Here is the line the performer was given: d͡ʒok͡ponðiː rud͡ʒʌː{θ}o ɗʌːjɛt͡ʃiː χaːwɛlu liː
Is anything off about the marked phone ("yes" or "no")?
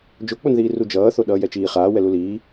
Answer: no